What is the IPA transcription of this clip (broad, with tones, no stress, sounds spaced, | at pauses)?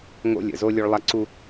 ŋ o̰˦ lʲ ə̰˨ z o˦ lʲ o˦ ɭ lˠ a˦ ǀ u˦